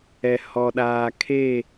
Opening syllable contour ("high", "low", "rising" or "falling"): low